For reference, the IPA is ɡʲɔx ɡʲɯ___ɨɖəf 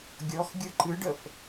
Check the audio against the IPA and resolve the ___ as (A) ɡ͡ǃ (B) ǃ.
B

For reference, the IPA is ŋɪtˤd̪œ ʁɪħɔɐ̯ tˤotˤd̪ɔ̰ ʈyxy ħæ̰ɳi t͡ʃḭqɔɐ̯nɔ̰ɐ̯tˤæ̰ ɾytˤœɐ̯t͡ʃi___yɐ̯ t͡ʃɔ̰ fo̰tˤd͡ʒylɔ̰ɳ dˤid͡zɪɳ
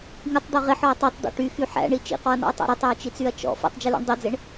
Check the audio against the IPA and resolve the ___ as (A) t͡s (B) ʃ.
A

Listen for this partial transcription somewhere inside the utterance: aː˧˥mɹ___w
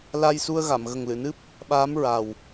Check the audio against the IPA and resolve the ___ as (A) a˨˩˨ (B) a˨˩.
B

